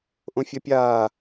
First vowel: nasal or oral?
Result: nasal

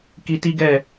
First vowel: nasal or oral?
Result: oral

